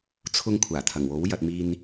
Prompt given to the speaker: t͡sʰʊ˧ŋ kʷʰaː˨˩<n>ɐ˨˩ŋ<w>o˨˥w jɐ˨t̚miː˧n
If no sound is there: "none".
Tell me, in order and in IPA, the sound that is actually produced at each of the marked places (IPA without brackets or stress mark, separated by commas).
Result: t̪ʰ, w